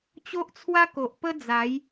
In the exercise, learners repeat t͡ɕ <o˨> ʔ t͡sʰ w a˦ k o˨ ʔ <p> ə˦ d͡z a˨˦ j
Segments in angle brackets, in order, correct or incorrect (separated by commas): incorrect, correct